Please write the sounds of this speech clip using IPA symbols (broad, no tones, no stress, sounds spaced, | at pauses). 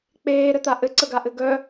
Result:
k͡p eː ɾ ɘ t̪ a ʔ ɘ ǀ ə ɡ a ʔ ɘ ɡ œ